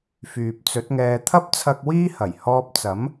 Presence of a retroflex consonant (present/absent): absent